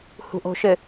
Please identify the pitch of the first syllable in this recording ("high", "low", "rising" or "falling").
low